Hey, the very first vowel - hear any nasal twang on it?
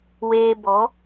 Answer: no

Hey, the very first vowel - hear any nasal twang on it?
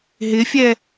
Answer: no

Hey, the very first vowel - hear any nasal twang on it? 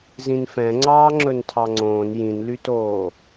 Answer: yes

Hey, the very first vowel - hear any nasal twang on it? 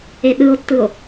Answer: no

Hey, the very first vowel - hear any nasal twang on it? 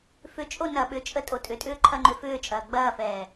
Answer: no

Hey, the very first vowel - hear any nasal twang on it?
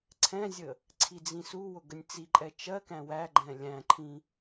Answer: yes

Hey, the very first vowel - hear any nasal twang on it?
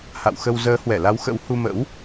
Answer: no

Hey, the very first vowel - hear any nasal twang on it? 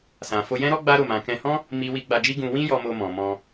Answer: yes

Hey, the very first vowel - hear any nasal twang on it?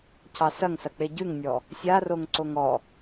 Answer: no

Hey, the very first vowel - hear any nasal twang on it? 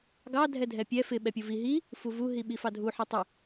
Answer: no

